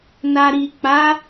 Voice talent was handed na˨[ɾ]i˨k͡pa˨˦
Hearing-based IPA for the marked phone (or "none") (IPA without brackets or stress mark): ɾ